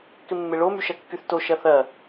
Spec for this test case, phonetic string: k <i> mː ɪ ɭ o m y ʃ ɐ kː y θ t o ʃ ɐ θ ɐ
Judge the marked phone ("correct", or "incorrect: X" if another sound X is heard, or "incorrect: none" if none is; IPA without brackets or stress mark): incorrect: ɪ